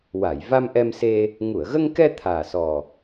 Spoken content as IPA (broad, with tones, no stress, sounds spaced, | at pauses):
w a˨˩˨ j v a˧ m ʔ ɛ˧ m s e˧ | ŋ u˨˩˨ ə̯ ɣ ə˧ ŋ k ɛ˧ t̪ʰ aː˨˩ s ɔ˨˩